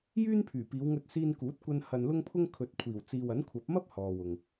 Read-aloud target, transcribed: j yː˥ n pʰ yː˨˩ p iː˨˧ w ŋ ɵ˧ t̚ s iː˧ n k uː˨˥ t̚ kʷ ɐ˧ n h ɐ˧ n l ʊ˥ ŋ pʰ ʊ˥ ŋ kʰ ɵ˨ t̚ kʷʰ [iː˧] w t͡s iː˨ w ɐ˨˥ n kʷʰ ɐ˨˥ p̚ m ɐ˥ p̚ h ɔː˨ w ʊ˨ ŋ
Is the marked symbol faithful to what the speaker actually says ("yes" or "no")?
no